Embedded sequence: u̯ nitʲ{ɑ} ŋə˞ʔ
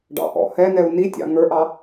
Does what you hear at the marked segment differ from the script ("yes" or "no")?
yes